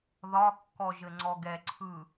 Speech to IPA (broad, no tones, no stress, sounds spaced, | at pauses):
ð ɒ kː ɔ ʒ ɘ ŋ͡ǀ ɔ ɡ ɛ ǀʰ ɯ